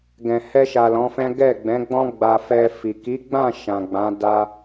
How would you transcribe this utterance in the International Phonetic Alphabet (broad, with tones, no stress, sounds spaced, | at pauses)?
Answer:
ɡ ɛ̃˨ h ɛ˧ ʃ a˨ l ɔ̃˨˦ f ɛ̃˦ ɡ ɛ˦˨ ɡ͡b ɛ̃˨˦ ɡ͡b ɔ̃˦ ɡ͡b a˧ f ɛ˧ f i˨ k i˨˦ ɡ͡b ã˦˨ ʃ ã˨ ɡ͡b ã˨˦ d a˧